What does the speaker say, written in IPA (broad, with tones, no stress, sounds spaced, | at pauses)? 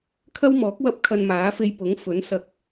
kʰ ɐ˥ w m ɔː˨˥ k̚ w ɐ˥ p̚ kʰ ɐ˧ n m aː˨˥ f e˧ j p ʊ˨˥ ŋ f ɵ˨˥ n s ɐ˧ k̚